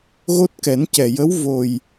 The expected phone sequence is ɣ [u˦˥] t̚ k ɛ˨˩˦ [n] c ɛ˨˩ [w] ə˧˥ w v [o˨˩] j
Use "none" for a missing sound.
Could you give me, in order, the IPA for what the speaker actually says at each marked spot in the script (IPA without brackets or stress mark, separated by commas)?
o˦˥, n, j, o˨˩